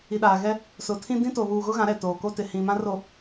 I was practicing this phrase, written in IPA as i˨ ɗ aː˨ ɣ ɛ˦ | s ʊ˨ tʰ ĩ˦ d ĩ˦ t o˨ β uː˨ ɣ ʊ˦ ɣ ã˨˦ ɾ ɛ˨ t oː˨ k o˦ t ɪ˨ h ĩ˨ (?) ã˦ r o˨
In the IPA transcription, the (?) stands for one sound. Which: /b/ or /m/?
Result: m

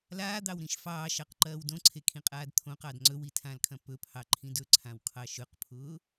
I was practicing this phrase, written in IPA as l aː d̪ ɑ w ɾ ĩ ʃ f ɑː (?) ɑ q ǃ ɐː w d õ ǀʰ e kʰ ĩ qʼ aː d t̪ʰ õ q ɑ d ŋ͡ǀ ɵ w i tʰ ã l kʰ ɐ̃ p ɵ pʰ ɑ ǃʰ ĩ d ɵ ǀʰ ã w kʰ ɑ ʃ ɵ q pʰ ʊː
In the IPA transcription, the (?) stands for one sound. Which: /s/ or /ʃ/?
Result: ʃ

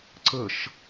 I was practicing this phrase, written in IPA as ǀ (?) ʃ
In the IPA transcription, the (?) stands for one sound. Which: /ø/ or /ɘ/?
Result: ɘ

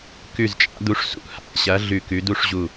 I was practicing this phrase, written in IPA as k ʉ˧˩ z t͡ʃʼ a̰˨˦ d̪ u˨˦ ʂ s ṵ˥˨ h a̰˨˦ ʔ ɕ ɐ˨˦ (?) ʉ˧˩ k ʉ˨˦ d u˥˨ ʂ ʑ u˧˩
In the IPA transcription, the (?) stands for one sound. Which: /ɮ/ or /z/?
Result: ɮ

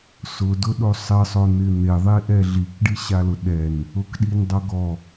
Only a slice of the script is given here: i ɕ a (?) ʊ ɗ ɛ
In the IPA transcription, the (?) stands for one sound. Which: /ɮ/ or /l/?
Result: l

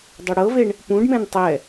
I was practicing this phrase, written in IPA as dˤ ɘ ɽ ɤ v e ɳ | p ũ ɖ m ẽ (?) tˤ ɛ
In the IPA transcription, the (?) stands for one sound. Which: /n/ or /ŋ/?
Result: n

